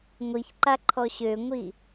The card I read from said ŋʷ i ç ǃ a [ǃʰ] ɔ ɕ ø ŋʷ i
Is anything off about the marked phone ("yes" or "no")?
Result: no